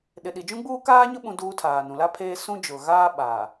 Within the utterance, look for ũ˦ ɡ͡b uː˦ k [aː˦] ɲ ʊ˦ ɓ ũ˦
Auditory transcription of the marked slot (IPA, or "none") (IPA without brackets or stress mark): aː˦